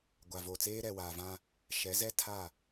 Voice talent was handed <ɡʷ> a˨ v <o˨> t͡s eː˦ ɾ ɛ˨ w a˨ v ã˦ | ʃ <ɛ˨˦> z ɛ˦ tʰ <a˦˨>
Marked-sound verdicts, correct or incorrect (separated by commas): correct, correct, correct, correct